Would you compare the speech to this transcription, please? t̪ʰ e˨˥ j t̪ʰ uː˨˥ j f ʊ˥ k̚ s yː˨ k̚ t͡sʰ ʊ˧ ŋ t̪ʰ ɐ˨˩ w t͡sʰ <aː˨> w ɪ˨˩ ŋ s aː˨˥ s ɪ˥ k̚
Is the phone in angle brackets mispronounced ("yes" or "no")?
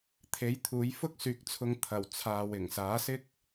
no